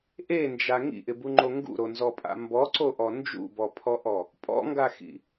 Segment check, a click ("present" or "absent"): present